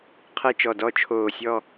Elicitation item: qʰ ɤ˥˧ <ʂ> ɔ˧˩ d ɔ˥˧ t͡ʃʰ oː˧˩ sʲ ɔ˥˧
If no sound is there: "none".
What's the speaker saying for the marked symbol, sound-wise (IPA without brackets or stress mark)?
t͡ʃ